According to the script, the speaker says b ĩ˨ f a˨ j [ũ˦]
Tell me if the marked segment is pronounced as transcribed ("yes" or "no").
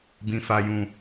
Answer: no